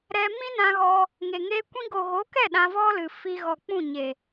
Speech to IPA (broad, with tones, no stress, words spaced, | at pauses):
ɾɛ˧ mĩ˦nã˧ɣɔ˧ | ŋe˨ŋe˦ kʷĩ˧ɡo˨ɣo˨˦kɛ˦˨ ɗã˧vɔ˦ lɨ˨fi˧ ɣɔ˨k͡pũ˦˨ɲe˨